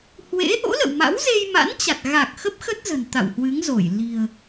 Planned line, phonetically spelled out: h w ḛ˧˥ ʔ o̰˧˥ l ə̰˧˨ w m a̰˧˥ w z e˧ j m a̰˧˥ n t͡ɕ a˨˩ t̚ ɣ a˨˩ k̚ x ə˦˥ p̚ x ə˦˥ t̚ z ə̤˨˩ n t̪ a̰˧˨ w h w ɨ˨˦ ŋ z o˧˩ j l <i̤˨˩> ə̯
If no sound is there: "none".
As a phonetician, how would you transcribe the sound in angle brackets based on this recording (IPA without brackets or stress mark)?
i̤˨˩